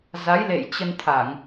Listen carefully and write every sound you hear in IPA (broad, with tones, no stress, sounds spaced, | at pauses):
z a˨˦ j l ḛ˧˨ j t͡ɕ ə˧ n t̪ʰ a˧˩˨ ŋ